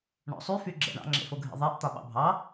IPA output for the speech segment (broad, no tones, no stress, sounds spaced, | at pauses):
ɳ ɔ̰ sˤ y f y ɡ͡ǁ ɛ̰ ɳ ɑ̰ ŋ͡ǁ ḛ f o ɡʱ ḛ ðˤ ɛ ʔ t̪ ɒ ɓ ɑ̰ bʱ ɑ